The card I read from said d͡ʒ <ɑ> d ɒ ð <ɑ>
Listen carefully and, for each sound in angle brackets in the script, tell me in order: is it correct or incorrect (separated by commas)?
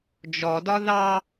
incorrect, correct